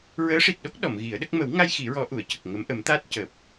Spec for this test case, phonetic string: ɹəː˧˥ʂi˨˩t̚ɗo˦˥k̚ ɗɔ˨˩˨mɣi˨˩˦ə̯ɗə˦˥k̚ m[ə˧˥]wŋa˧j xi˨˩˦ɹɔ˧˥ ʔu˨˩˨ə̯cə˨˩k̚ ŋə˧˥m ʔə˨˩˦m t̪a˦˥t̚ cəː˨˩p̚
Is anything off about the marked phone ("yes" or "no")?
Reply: yes